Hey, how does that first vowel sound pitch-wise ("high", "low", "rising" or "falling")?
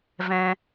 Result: high